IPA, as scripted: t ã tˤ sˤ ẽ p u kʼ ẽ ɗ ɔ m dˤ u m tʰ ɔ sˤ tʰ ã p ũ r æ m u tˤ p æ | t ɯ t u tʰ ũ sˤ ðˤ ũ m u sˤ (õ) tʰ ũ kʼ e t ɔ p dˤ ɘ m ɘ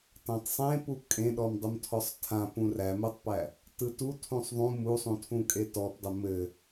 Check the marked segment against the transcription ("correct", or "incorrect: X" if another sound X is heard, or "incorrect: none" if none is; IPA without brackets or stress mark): incorrect: ũ